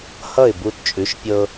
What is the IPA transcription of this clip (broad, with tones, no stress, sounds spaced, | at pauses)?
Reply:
h ʌ˥˩ ɪ̯ b u˧ t t͡ʃʼ ʉ˩˥ ʃ pʲ ɤ˧